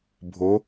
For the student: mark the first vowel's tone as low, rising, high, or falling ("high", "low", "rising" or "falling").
rising